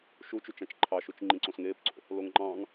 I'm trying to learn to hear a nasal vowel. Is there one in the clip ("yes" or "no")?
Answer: yes